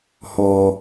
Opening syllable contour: low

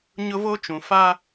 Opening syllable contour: high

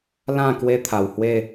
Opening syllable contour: falling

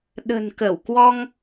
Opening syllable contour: low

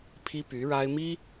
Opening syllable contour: high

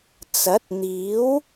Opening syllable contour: rising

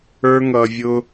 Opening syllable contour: high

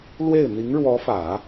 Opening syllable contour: falling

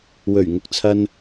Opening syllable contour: low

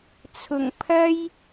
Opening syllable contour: low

